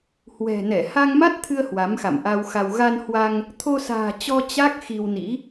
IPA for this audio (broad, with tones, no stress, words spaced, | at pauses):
hwɛ̤˨˩nɛ˧˩ ha˧ŋma˦˥t̚t̪ʰɨ˧ə̯ hwa˨˦mxa̰˧˨mʔa˧wxa˧w ɣa˧nhwa˧ŋ | t̪ʰo˧sa̤ː˨˩t͡ɕɔ˧ t͡ɕa˦˥k̚ xi˧wnḭ˧˥